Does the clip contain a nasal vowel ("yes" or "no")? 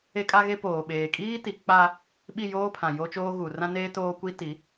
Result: yes